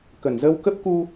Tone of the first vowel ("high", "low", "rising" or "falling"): low